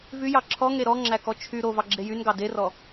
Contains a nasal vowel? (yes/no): no